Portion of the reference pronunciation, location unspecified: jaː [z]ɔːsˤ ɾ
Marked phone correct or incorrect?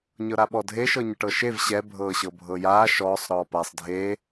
incorrect